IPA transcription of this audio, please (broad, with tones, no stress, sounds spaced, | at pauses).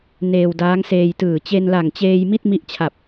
n eː˧ w d aː˦˥ ŋ s eː˧ j t ɯː˨˩ t͡ɕ e˧ n l a˨˩ ŋ t͡ɕ eː˧ j m i˥˩ t̚ m i˦˥ ʔ t͡ɕʰ a˨˩ p̚